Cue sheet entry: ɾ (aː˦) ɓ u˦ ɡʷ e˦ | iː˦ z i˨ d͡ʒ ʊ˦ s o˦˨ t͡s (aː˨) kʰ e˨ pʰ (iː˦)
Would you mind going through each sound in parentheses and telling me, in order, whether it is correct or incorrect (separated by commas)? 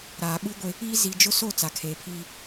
incorrect, incorrect, correct